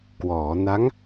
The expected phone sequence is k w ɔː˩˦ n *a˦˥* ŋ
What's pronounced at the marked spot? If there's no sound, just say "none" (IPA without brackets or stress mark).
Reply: a˦˥